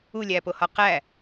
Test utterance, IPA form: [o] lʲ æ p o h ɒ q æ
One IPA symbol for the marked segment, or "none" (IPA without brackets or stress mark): u